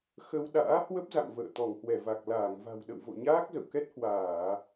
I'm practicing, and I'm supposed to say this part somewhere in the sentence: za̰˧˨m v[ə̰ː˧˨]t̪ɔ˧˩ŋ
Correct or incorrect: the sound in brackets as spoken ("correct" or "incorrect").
correct